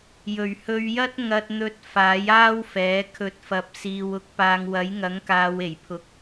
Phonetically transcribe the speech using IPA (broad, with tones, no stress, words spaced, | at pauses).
jɵ˨˩ɥhɵ˨˧ɥjɐ˥t̚ ŋɐ˧t̚n̪ɵ˧t̚ faː˨˥jaː˥wfɛː˨˥ kʰɵ˨˥t̚fɐ˨p̚siː˨w ʊ˨˥k̚paː˨ŋwɐ˨˥j ŋɐ˨˥ŋkaː˨˧w e˨˩jpʰʊ˧k̚